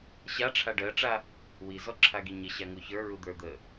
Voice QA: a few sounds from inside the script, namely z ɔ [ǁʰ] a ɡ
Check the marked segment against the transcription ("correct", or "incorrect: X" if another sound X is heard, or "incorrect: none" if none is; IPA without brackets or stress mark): correct